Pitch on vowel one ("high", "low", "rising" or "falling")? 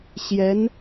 rising